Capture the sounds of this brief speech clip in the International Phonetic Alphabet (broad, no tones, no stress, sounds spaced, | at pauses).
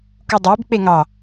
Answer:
k u dˤ ɘː b k͡p e ŋ ɑ